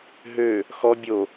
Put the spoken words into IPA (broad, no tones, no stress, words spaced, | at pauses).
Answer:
ɦø | xɔ bʲo